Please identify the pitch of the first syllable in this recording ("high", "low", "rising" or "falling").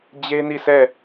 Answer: high